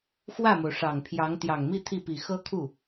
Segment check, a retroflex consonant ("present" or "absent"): present